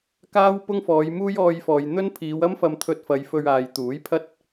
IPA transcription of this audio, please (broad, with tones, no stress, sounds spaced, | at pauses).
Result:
k aː˥ w p ʊ˥ ŋ f ɔː˨˧ j m uː˥ j ɔː˧ j f ɔː˨ j n̪ ɵ˥ n pʰ iː˨˧ w ɐ˥ m f ɐ˧ m t̪ʰ ɵ˧ t̚ f ɐ˨˧ j f ɵ˧ ɥ aː˨ j t̪ uː˨˥ j pʰ ɐ˥ t̚